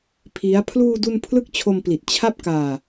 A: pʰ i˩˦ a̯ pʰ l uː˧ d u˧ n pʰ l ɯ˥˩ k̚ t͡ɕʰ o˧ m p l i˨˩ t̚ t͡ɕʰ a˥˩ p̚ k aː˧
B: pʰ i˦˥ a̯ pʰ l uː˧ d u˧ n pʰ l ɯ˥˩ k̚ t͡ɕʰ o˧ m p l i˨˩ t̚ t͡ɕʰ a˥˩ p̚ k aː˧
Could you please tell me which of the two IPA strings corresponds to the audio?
B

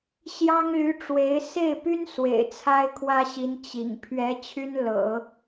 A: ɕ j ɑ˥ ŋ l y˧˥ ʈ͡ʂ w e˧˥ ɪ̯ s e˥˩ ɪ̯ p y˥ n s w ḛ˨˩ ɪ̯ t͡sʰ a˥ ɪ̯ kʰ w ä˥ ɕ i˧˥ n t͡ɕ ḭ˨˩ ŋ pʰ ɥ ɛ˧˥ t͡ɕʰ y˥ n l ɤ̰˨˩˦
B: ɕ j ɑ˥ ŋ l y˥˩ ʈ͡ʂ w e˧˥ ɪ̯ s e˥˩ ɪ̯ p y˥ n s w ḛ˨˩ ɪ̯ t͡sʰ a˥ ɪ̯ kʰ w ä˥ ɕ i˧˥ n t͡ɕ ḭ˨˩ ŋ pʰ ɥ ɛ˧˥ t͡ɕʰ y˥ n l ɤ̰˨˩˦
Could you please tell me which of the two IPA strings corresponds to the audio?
A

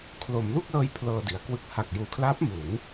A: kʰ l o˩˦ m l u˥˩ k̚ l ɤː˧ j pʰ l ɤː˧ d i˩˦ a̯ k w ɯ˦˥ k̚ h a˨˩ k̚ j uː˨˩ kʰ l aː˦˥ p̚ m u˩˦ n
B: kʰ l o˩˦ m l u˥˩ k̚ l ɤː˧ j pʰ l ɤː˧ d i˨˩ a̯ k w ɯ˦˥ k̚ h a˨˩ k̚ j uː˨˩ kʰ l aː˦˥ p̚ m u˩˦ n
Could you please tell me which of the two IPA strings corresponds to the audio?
A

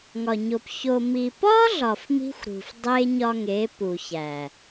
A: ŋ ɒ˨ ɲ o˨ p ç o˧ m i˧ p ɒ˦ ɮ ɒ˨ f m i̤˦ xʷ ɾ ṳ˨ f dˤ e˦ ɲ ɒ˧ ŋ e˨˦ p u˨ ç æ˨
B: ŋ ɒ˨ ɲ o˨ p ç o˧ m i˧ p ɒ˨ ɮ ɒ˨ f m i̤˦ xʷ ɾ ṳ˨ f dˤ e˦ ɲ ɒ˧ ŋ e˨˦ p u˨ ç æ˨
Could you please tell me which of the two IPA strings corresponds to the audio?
A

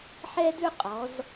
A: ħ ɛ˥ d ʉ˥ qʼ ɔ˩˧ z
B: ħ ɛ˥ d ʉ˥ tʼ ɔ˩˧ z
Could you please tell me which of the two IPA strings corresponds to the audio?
A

